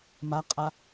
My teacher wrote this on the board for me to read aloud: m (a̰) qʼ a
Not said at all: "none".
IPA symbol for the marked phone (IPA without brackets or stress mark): a